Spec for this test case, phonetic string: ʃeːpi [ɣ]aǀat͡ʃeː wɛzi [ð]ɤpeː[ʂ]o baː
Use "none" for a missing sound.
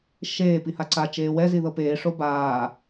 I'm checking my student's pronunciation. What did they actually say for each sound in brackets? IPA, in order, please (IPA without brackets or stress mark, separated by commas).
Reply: h, ð, ʂ